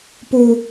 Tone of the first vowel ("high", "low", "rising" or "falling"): high